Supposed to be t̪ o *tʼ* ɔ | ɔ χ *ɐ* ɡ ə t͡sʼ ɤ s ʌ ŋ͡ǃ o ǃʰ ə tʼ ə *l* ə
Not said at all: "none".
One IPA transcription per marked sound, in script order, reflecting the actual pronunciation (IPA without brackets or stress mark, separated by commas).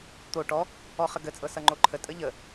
ʈ, ə, ʎ